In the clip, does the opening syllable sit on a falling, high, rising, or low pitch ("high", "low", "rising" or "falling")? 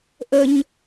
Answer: high